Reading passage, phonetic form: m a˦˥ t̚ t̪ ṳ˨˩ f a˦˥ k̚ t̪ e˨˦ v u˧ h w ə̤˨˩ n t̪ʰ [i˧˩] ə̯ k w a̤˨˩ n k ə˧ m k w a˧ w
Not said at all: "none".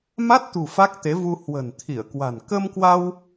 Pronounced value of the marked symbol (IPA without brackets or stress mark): i˧˩